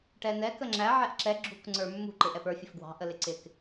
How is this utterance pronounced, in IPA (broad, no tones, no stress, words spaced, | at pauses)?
ʈɛnɛ kəŋ͡ǁæ ʕɛʔǁɛ ɡ͡ǁuk ŋ͡ǀə˞mːṳ ǃɪʔɛpə˞ fʲəfɡwɑ̤ ʔəlɪǀɪk